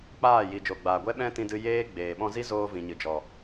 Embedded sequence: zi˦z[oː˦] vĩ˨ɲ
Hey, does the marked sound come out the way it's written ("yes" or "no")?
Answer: no